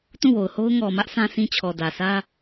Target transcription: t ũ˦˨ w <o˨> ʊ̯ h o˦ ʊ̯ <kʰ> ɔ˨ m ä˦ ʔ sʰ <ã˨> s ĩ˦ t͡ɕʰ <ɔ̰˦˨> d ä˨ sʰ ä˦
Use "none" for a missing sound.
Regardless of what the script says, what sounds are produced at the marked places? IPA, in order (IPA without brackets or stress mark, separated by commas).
o˨, ŋ, ã˦, ɔ˨